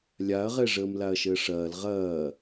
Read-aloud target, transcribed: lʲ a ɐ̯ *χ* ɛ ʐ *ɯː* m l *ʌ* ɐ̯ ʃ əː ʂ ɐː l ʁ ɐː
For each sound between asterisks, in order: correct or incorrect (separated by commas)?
incorrect, incorrect, incorrect